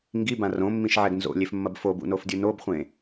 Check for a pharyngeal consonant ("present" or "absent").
present